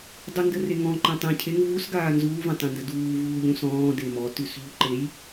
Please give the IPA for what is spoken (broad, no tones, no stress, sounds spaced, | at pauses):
dˤ ə n d ə r e ŋ ɔ̃ ǃ ẽ tˤ ẽ cʰ e ŋ v u s ɡ aː n z uː v ẽ tˤ ẽ n d ə d uː v uː ʎ ũ s ɔ̃ː d e m ɔ t ʉ s ʎ u ǃ e j